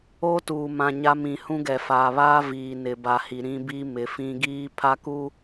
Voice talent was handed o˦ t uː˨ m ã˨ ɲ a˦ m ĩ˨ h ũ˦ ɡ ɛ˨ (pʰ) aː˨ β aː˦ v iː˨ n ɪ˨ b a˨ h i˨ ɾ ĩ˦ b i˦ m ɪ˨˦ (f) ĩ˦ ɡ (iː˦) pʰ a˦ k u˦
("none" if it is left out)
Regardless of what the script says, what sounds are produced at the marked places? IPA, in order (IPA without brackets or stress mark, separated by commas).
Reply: f, f, iː˦